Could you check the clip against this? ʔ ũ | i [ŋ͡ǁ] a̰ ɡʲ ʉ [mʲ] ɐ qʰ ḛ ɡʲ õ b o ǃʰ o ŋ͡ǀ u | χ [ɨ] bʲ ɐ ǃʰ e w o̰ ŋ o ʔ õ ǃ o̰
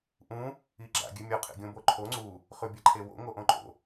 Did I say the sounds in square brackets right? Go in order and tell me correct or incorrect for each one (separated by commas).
incorrect, correct, incorrect